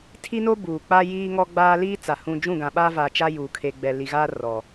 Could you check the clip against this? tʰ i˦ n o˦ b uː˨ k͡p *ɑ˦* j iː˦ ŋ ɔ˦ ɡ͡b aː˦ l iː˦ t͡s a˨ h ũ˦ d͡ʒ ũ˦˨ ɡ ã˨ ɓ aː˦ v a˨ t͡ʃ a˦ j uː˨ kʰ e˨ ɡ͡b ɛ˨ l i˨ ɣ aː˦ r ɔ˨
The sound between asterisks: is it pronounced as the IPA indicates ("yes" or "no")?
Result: no